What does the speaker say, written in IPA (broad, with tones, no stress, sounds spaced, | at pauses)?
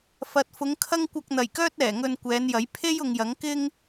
f ɐ˨ t̚ f ʊ˨˧ ŋ kʰ ɐ˥ ŋ kʷ ɐ˧ k̚ n̪ ɐ˨˩ j k œː˥ t̚ ɛː˨˩ ŋ ɵ˧ n kʷ ɛː˨˧ n j ɐ˨˥ j pʰ e˥ j ʊ˨ ŋ j ɐ˨˥ ŋ k ɪ˥ ŋ